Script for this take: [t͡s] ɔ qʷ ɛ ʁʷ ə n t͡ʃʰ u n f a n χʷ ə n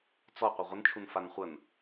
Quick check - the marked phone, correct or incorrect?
correct